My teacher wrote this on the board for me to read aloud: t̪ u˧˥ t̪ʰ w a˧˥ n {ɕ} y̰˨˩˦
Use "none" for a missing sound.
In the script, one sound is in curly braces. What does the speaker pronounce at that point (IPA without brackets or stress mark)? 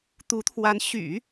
ɕ